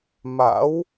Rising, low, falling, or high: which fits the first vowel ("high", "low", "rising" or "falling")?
rising